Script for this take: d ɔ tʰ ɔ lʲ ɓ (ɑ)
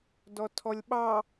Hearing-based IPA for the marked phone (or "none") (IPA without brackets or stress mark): ɑ